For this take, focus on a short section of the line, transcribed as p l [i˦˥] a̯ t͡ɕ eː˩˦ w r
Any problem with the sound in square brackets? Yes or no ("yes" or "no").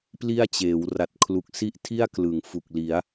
yes